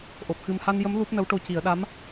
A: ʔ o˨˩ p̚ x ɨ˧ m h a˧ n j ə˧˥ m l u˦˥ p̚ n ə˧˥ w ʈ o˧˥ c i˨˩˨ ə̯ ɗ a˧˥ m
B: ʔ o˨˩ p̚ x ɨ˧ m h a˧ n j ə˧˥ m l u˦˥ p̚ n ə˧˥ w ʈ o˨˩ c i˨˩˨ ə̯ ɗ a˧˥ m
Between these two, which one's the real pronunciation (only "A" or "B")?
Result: A